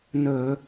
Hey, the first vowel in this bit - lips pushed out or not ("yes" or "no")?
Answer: yes